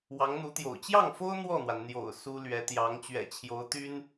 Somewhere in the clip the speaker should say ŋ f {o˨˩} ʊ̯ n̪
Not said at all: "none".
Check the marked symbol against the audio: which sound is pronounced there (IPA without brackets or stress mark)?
o˥